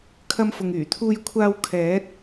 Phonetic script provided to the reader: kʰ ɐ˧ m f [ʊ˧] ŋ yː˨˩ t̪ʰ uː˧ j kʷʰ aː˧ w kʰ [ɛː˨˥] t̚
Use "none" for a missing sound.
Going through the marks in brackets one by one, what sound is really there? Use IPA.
ʊ˨, ɛː˨˥

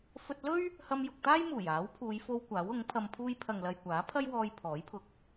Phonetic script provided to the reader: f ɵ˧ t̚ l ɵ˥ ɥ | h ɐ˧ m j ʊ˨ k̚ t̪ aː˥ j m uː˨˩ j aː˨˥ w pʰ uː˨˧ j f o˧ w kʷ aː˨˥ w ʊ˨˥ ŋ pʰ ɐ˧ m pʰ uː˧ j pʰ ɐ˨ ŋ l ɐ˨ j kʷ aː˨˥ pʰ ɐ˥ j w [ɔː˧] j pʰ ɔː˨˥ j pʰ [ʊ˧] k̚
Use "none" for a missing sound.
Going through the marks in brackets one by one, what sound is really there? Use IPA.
ɔː˧, ʊ˧

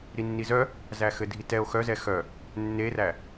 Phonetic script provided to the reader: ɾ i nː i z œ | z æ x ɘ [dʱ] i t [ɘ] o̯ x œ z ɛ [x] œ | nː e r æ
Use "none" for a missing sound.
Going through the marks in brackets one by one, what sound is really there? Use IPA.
dʱ, ɛ, x

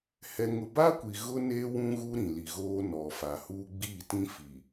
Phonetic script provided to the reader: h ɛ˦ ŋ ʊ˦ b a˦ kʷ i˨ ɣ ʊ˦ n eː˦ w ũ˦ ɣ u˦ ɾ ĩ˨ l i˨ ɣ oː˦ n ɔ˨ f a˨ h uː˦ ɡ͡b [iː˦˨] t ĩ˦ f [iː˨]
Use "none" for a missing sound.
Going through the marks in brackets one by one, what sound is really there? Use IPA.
iː˦˨, i˨

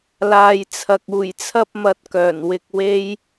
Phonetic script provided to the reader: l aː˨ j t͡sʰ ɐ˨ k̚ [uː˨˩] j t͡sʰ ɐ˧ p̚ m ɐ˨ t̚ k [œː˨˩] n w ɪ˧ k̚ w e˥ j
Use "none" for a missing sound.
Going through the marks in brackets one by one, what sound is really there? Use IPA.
uː˨˩, œː˨˩

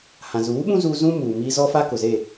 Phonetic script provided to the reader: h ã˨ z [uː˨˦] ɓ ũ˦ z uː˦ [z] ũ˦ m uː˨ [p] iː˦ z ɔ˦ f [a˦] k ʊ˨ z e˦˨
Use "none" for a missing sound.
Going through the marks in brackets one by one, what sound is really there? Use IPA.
uː˨˦, z, m, a˦

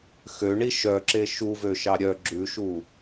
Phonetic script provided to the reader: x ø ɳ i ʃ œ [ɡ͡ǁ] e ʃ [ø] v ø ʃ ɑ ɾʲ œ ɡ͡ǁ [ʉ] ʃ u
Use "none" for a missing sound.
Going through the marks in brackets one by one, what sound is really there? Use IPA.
ǁ, u, ʉ

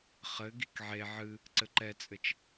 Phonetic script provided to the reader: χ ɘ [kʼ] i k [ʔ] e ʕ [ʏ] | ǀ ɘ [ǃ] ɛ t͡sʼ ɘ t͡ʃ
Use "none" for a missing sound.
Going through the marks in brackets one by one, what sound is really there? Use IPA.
ɡ, ʕ, ɨ, ǃ

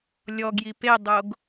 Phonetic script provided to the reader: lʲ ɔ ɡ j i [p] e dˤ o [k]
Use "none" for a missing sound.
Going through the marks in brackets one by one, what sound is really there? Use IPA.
p, ɡ

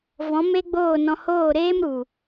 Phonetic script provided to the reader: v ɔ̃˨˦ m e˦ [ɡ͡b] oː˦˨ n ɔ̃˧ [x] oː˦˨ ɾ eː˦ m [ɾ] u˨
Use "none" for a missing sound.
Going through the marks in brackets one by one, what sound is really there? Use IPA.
ɡ͡b, h, ɾ

